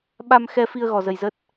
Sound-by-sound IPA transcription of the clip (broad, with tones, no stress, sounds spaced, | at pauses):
ɓ a˧ m x ɛ˧ f i˧ ə̯ ɣ ɔ˧ z ə˧ j z ə˦˥ t̚